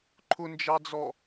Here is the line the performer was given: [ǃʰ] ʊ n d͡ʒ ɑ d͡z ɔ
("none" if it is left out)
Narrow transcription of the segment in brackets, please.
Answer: ǃʰ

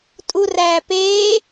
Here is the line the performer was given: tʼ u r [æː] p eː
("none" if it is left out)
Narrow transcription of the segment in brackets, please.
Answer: æː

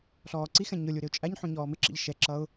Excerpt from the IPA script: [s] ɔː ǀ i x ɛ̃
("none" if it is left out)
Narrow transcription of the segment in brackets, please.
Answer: ɬ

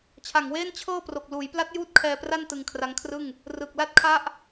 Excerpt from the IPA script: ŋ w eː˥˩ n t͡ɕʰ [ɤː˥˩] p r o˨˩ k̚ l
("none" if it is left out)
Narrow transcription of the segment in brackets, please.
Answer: ɤː˥˩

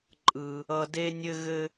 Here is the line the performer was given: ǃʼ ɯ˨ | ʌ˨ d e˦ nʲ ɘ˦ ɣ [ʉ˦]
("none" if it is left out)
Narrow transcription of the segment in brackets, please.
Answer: ɘ˦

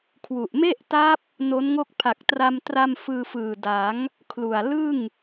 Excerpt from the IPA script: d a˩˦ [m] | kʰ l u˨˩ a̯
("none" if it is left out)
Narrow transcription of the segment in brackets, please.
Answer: ŋ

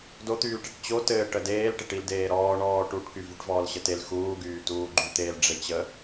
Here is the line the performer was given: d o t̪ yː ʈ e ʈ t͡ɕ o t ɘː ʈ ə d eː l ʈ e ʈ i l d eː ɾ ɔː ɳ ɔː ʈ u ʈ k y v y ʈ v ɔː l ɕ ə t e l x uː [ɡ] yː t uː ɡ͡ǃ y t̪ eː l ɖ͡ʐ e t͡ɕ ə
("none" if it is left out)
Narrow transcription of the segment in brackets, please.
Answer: ɡ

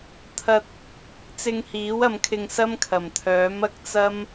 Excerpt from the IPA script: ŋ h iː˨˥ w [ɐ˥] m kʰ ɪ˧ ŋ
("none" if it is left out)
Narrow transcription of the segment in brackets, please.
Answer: ɐ˨˧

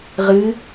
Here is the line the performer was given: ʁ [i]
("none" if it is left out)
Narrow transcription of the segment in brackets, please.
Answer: ɨ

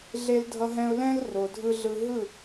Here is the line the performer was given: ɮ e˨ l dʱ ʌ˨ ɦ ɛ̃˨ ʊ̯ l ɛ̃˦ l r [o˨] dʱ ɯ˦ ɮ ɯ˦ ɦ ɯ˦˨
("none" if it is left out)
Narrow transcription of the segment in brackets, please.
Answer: o˨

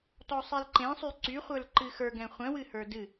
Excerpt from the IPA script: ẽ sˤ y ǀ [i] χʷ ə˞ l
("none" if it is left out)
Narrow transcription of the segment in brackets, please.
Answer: y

